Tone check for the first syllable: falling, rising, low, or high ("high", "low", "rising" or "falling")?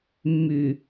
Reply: low